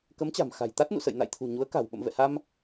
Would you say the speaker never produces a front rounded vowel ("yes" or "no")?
yes